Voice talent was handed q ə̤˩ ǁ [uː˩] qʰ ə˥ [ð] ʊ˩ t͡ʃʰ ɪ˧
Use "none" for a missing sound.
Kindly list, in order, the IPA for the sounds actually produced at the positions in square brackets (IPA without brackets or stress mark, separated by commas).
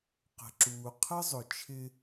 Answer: uː˩, zˤ